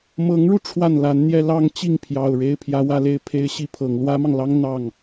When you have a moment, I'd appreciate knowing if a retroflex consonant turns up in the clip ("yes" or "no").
yes